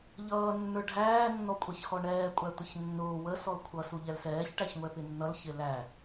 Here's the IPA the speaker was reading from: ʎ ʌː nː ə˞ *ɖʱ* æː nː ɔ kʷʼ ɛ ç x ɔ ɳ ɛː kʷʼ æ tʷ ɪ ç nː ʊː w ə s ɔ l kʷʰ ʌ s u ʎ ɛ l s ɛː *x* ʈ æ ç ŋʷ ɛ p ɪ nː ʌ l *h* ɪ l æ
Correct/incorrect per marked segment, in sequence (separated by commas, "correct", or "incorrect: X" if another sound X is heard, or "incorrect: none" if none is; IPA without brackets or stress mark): correct, incorrect: ç, incorrect: ç